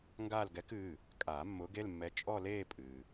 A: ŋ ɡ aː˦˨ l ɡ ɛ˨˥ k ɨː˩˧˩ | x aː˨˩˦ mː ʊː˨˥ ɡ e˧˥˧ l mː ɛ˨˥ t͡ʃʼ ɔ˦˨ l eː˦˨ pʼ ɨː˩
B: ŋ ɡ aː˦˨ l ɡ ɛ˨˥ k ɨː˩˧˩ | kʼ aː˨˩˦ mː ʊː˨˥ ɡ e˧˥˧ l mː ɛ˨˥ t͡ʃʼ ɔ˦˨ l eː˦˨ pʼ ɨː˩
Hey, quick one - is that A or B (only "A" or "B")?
B